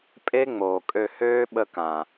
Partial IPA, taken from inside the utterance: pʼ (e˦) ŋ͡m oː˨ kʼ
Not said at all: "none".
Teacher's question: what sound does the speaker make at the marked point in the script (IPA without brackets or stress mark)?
e˦